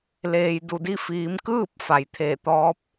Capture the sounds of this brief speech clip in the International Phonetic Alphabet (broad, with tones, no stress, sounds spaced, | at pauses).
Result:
l eː˩ j d u˧˩ d i˥˨ f iː˩˧ m k ɯː˥˨ p̚ f a˩˧ j t̪ʰ eː˧˩ t̪ ɔː˧˥ p̚